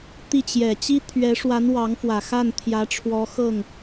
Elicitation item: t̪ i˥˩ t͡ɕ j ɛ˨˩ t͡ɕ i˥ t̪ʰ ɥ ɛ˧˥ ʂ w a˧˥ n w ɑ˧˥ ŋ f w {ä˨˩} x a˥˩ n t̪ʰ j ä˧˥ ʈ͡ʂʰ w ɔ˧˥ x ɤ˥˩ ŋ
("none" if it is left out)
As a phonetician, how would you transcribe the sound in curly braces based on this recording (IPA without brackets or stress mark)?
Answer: ä˨˩